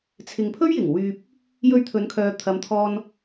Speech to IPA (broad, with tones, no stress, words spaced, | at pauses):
t͡sʰɪ˨ŋpʰɵ˥ɥjɪ˨˩ŋ wyː˧p̚ | jɵ˧ɥt̪ʰɵ˨˧nkʰœː˨t̪ʰɐ˨˧m t̪ʰɔː˧n